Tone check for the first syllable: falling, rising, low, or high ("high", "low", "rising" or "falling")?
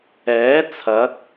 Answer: rising